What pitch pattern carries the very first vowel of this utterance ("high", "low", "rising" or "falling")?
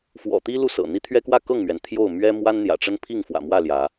low